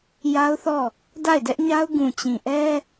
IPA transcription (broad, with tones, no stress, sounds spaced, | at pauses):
j a˦ ʊ̯ θ ɔ˦˨ | d a˦˨ ɪ̯ d ɛ˦ ʔ ɲ a˦ ʊ̯ ɡ ũ˨ t͡ɕ ĩ˨ ʔ ɛ˦